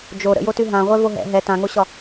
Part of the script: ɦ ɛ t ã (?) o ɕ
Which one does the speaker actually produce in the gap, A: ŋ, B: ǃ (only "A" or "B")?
A